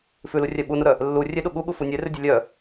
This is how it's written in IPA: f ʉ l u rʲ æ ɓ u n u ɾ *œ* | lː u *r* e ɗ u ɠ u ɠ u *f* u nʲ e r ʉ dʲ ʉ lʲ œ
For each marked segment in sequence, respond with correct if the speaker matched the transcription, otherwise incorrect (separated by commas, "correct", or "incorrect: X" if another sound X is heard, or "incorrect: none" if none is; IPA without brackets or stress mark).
correct, incorrect: rʲ, correct